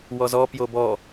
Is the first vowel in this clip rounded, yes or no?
yes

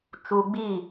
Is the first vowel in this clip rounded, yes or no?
yes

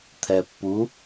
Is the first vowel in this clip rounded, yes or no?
no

